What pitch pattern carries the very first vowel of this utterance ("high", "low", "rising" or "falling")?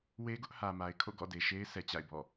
high